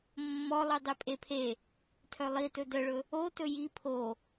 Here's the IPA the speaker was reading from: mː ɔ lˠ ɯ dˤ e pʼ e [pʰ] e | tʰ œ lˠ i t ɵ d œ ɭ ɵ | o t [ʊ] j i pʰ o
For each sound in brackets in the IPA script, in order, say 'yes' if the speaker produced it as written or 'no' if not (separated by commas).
yes, no